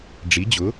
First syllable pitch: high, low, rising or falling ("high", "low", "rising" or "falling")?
rising